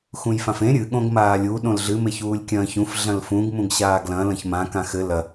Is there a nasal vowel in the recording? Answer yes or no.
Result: yes